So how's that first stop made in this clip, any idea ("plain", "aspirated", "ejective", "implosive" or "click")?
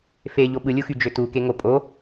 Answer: implosive